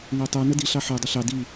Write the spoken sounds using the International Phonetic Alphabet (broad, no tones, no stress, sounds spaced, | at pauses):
ŋ æ tˤ ə˞ n ə d i ɬ ɑ ħ ə˞ dˤ ɪ ɬ ɑ d i